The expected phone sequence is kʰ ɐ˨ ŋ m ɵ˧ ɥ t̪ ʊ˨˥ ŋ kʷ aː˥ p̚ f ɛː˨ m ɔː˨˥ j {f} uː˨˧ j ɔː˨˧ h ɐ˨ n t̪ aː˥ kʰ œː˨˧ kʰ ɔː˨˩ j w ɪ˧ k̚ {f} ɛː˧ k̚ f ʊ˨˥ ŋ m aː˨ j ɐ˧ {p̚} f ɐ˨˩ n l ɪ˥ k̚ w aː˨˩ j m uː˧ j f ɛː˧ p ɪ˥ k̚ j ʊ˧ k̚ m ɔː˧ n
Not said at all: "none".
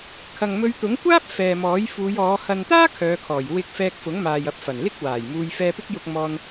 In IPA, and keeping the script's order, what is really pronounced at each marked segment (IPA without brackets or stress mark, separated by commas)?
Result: f, f, p̚